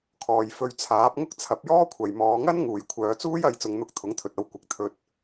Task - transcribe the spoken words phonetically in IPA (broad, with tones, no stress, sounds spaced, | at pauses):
kʰ ɔː˨ j f ɵ˧ ɥ t͡sʰ aː˨˥ p̚ ŋ ʊ˥ k̚ t͡sʰ ɐ˨˥ p̚ j ɔː˥ kʷʰ ɐ˨ j m ɔː˨˧ ŋ ɐ˥ n ŋ uː˨ j kʷʰ œː˨˧ t͡s uː˥ j ɐ˧ j t͡s ʊ˨˧ ŋ n̪ ʊ˧ k̚ t̪ʰ ʊ˨˥ ŋ t̪ʰ ɵ˨ t̚ ɐ˧ w kʷ ɪ˨ k̚ t̪ʰ ɵ˧ t̚